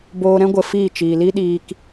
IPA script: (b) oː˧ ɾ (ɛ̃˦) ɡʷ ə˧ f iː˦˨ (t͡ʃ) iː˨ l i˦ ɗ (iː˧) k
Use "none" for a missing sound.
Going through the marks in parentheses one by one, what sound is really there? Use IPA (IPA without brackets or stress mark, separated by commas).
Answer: b, ɛ̃˦, t͡ʃ, iː˧